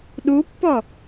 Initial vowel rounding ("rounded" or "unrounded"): rounded